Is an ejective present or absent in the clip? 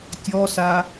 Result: absent